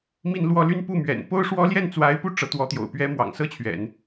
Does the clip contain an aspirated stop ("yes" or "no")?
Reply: yes